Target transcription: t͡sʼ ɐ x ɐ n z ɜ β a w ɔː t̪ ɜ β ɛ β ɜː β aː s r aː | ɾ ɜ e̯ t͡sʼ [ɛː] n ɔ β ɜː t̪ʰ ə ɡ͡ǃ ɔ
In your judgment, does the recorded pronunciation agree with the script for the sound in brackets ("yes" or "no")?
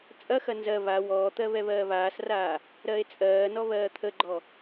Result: no